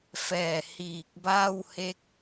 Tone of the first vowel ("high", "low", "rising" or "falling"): low